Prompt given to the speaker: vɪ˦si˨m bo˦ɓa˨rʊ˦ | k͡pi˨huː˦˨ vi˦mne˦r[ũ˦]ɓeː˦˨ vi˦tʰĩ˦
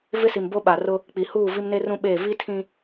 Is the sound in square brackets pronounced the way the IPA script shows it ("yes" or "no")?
yes